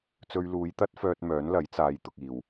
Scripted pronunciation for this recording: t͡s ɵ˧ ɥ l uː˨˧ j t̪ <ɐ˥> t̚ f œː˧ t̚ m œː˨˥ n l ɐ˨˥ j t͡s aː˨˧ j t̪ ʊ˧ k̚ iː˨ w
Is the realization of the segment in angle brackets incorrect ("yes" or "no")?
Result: no